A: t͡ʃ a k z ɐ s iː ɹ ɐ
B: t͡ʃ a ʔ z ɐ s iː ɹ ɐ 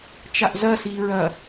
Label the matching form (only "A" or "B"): B